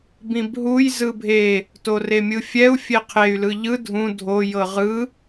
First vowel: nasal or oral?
nasal